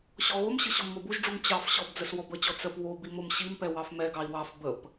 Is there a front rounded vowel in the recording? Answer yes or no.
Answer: no